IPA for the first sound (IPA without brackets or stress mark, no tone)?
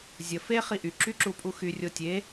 zʲ